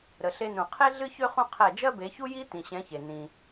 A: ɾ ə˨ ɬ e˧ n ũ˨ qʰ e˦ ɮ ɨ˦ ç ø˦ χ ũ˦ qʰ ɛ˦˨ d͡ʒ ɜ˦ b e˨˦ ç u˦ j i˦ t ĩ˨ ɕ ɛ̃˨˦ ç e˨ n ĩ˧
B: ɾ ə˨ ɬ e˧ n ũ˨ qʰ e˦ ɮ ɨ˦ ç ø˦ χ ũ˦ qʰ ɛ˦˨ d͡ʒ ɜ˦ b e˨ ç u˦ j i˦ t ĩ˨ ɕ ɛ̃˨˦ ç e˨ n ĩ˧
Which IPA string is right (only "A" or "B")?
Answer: A